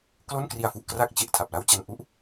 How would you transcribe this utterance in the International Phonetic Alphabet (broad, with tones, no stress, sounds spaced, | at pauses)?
k l o˥˩ n k r i˧ a̯ f u˨˩ ʔ k r a˥˩ k̚ t͡ɕ e˨˩ ʔ tʰ a˨˩ p̚ l a˥˩ w t͡ɕ a˧ n ʔ u˦˥ ʔ